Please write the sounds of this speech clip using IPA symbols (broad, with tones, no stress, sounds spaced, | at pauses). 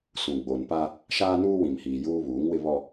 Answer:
s ũ˨ ɡ͡b o˨ n p a˦ | ʃ aː˦ n uː˦ w ĩ˨ m h iː˨ j uː˦ β uː˨˦ ŋ w ɪ˦ β ɔ˦